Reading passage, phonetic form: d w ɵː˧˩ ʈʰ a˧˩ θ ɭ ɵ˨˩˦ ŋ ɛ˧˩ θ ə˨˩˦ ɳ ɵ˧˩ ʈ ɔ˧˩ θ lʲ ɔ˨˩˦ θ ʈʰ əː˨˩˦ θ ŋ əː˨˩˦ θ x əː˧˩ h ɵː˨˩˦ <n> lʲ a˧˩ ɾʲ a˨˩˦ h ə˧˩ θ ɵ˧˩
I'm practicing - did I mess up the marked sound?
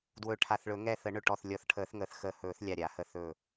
yes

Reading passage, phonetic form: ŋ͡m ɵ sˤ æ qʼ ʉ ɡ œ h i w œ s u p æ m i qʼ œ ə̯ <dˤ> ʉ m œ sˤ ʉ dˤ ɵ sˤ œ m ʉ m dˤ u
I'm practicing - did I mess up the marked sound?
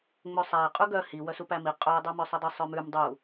no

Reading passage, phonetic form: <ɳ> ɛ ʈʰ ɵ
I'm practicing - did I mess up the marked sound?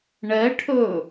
no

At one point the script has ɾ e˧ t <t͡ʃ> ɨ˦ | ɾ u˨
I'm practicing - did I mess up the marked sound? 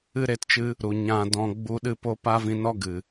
no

